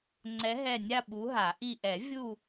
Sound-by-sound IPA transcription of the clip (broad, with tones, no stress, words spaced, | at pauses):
ŋ͡ǀɛ˧˥ɦɛ˦˨ nʲa˦˨ ɓu˧˥ɦa˨˩˦ʔi˦˨ ʔɛ˨˩˦vʲu˦˨